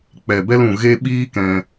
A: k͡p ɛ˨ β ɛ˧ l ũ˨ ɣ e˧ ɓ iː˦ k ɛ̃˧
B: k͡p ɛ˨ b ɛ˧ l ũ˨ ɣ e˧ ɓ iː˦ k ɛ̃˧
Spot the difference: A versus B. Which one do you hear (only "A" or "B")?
B